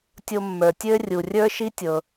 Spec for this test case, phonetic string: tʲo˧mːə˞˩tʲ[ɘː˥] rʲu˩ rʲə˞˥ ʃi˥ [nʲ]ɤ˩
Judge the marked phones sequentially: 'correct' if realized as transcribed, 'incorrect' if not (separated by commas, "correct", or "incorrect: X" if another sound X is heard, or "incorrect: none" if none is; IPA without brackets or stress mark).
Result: correct, incorrect: tʲ